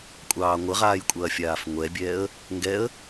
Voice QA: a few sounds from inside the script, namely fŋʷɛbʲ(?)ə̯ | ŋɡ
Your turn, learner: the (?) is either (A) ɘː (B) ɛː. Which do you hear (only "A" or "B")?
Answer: B